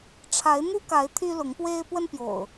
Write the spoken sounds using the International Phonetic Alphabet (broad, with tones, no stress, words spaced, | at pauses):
ʈ͡ʂʰa˨˦ɪ̯n̪u˦ka˨˦ɪ̯ t̪ʰy˦lʊ˨˦ŋpwe˦ɪ̯ pwə˦npjo̰˨˩ʊ̯